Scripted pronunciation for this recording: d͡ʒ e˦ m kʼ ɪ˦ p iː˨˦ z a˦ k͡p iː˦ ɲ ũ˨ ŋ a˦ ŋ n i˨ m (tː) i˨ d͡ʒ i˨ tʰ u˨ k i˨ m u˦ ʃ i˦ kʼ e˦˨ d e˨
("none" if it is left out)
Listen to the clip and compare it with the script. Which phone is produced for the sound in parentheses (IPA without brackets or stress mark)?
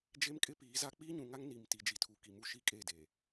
t